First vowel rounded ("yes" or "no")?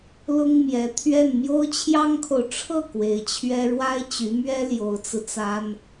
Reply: yes